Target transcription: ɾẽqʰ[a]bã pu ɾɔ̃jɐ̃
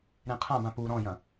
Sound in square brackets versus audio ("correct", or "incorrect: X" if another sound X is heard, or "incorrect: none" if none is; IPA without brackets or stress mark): incorrect: ã